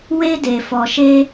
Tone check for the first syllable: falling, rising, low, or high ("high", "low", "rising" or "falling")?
high